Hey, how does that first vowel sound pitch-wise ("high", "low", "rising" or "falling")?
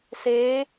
rising